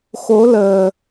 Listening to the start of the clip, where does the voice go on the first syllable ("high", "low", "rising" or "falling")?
rising